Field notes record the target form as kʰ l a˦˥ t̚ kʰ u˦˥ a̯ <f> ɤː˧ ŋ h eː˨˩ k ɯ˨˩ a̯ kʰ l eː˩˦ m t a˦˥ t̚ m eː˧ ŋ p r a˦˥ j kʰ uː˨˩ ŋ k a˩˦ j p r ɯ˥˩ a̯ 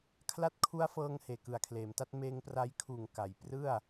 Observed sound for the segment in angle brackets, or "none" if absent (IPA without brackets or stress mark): f